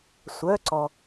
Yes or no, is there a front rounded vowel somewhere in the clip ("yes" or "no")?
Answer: yes